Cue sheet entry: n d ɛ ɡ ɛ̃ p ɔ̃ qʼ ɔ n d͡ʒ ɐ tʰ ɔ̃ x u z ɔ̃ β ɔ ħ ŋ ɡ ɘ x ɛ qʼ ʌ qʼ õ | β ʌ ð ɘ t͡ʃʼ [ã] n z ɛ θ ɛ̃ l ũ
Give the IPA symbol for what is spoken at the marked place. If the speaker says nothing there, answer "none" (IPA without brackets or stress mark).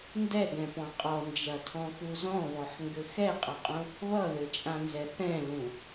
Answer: ã